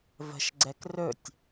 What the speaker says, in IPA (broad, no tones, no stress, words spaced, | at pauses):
və̤ʃɡ͡ǀɛk rɵtʲ